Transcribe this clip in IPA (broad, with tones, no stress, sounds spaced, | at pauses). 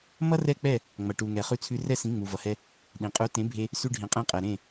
m ʌ˥ r ɛ˥˩ k͡p ɛ˥˩ | ŋ͡m ʌ˩ ʈ u˩ ŋ ɛ˩ χ ʉ˧ t͡sʰ ʉ˧ r ɛ˥˩ s ĩ˩˥ ŋ͡m u˩ v ʌ˩ h ɛ˧ | ɗ ĩ˩ qʼ u˩˥ t ẽ˩˥ bʱ e˧ | s ʉ˧ ɖʱ ĩ˩ qʼ ẽ˧ qʼ ɛ˩ ɾ ẽ˥˩